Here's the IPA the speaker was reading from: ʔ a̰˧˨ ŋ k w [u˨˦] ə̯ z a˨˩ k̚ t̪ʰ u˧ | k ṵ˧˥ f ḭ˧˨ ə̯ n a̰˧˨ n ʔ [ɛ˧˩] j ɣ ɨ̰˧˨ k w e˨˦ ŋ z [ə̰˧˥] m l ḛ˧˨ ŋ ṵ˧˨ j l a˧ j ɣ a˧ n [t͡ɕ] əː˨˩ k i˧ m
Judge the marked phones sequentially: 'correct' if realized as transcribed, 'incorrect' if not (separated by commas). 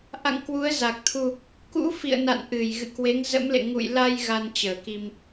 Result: correct, incorrect, correct, correct